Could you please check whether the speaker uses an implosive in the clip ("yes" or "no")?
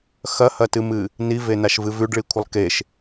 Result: no